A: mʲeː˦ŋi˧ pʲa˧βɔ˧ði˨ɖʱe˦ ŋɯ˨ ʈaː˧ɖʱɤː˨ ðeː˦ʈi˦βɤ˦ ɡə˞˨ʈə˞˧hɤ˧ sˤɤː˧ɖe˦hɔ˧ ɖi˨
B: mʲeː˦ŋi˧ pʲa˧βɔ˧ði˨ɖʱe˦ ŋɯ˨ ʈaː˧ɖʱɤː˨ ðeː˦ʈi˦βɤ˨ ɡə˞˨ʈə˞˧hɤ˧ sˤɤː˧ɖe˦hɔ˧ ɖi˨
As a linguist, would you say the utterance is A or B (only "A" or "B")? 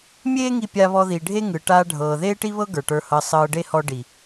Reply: A